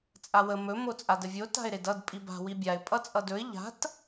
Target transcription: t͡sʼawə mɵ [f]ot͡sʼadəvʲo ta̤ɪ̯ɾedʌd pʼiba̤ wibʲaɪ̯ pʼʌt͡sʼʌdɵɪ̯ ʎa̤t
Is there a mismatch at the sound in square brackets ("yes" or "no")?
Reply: yes